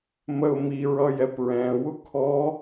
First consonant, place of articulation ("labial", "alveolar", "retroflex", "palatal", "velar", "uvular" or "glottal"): labial